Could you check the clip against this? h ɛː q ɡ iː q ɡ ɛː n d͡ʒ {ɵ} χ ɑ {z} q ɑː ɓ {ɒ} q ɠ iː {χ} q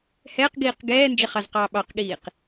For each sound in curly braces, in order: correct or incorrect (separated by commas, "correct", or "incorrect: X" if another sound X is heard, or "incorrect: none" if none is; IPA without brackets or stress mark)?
incorrect: ə, correct, incorrect: ɑ, incorrect: none